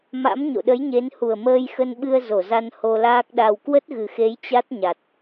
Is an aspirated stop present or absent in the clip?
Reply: absent